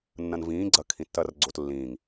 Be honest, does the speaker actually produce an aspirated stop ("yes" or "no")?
yes